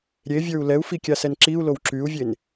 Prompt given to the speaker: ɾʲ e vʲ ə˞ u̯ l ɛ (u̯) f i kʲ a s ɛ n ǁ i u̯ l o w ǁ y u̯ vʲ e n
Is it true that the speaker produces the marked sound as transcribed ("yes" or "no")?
yes